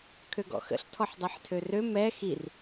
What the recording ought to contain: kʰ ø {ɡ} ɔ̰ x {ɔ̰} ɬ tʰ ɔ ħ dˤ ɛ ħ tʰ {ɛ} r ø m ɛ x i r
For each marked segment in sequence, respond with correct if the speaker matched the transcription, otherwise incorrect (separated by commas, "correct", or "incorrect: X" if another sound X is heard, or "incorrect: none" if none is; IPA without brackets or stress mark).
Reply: correct, incorrect: ə̰, incorrect: ø